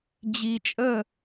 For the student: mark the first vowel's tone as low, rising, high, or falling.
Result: low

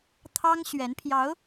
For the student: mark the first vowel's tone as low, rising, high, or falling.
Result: high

